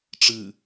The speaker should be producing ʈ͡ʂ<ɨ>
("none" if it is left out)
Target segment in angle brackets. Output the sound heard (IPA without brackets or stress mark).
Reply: ɨ